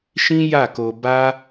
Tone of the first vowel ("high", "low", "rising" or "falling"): high